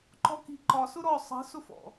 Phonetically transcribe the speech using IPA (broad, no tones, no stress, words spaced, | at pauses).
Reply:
ǃɔki̤ǃɒ sʊɾɔ sˤə̤ sʊfɔ̰